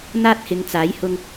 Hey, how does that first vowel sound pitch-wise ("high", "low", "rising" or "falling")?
high